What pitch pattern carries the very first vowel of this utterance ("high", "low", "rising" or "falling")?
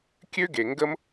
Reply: high